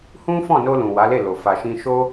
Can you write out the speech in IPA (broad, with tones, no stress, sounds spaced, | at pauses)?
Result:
h ũ˦ f ɔ̃˦˨ n o˧ l ũ˨ w a˨˦ l e˦˨ l o˨ f a˨ ʃ ĩ˧ ʃ o˦